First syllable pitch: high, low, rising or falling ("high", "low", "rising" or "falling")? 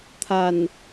low